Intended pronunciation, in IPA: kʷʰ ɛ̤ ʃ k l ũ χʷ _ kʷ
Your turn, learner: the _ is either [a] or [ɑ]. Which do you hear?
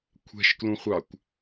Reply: ɑ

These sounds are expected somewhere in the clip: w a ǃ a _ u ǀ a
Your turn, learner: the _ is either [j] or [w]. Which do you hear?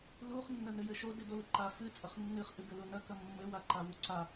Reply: w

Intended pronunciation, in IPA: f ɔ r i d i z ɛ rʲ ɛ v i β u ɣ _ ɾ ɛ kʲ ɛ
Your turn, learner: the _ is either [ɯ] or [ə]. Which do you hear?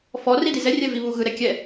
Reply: ɯ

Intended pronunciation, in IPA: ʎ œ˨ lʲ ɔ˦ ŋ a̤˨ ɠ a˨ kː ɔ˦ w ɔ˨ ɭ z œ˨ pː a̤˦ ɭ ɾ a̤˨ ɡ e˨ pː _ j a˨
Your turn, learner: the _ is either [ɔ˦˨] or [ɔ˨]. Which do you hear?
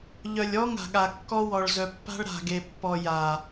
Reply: ɔ˨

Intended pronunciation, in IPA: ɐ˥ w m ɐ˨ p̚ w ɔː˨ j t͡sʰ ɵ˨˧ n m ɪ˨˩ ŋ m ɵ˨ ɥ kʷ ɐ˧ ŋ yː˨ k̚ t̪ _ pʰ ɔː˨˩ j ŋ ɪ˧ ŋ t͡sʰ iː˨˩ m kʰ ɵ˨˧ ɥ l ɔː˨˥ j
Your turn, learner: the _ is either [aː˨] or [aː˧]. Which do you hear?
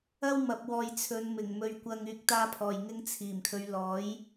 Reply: aː˧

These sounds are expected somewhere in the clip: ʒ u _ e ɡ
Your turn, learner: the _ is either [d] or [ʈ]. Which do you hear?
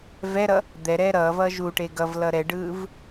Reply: ʈ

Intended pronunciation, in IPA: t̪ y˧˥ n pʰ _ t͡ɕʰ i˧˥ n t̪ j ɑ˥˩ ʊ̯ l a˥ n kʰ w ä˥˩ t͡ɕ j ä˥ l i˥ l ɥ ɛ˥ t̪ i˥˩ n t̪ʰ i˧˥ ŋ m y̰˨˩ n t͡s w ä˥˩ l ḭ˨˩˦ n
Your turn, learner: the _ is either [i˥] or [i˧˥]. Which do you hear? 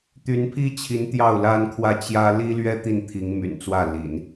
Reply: i˥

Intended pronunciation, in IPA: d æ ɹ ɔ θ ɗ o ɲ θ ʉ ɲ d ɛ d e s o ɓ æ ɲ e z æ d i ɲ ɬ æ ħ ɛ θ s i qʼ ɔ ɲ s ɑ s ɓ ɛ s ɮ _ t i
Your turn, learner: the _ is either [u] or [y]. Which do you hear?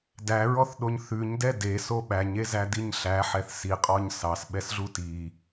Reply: u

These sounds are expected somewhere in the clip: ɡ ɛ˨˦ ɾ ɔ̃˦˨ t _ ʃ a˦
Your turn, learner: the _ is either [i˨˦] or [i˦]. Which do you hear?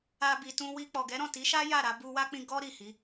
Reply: i˨˦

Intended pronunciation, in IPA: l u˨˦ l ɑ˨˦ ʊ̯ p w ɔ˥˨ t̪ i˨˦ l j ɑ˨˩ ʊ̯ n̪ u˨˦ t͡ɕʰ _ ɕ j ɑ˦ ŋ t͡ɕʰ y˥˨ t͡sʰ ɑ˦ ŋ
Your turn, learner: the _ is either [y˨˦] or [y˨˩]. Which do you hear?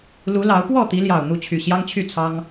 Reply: y˨˩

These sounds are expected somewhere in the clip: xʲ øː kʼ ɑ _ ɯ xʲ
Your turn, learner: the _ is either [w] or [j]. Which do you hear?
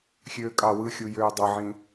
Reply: w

